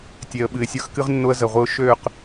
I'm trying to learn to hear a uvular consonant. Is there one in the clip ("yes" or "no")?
yes